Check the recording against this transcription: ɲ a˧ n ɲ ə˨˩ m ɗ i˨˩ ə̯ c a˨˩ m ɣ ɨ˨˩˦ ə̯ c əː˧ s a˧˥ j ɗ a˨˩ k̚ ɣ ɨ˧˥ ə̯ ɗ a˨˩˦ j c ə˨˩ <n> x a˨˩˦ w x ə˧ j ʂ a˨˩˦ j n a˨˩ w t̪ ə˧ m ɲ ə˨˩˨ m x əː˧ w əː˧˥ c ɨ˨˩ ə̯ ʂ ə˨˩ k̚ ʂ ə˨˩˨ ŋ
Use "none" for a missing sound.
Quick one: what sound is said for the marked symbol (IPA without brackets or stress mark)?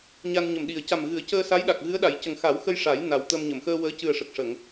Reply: ŋ